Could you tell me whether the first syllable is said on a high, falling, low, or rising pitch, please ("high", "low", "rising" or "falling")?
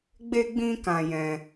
high